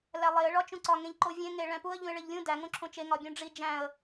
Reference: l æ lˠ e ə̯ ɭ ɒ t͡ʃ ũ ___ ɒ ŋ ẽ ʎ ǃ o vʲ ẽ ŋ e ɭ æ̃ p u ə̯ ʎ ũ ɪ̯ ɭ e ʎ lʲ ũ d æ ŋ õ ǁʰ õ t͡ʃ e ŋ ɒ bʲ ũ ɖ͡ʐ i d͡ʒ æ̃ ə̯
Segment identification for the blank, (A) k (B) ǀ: B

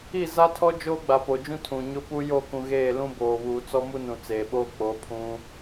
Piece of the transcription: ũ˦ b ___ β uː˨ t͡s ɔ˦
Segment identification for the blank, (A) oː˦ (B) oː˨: B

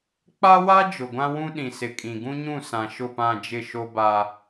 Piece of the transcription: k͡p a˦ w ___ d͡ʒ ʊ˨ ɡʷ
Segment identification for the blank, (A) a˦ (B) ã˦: A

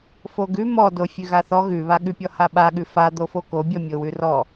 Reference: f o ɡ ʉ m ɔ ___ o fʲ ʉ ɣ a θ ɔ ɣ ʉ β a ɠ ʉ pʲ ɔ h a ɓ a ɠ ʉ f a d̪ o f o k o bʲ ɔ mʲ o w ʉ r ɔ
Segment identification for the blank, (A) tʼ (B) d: B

